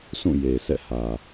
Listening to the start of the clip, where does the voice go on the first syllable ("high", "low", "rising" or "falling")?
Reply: falling